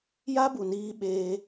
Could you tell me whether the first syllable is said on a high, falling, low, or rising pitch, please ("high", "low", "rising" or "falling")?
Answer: high